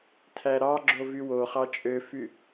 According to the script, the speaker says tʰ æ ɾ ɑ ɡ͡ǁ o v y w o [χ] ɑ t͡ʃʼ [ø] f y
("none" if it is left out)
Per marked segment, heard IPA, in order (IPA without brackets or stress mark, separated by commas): χ, ø